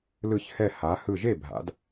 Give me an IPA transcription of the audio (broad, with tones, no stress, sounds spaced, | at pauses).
l ɯ˧˩ ç h ɛ˧˩ h a˩˧ h ɯ˧˩ ʒ e˥˩ bʱ a̰˩˧ d